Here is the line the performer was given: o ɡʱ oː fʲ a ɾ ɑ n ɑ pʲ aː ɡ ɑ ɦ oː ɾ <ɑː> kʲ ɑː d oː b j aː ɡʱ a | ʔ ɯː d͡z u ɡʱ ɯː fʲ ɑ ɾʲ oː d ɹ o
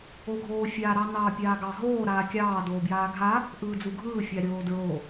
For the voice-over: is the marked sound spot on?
no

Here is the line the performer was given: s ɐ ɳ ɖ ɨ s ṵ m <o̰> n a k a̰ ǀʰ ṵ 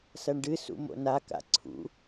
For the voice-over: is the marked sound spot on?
yes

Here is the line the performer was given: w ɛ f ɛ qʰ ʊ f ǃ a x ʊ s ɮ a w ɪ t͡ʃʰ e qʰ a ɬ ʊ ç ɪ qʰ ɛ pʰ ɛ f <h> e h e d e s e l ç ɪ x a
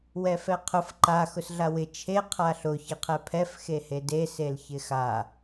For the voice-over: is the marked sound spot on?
no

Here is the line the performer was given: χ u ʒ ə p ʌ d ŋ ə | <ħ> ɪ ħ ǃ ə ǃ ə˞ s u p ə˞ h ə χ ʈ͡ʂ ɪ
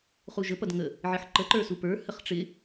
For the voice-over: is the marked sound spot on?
no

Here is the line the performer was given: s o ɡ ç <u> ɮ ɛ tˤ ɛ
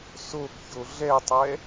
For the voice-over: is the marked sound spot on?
no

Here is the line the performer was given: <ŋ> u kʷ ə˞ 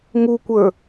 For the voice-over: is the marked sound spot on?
yes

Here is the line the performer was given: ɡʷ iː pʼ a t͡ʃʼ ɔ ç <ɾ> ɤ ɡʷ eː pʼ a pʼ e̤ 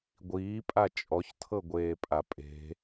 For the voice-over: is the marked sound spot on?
no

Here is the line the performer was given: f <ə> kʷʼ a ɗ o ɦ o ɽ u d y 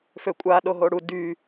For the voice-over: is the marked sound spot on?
no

